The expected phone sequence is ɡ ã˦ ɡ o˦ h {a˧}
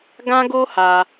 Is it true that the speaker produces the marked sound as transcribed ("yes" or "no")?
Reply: yes